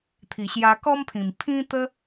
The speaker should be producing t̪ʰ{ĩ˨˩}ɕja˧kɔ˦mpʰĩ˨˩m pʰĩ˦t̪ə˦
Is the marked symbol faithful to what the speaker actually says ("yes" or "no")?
no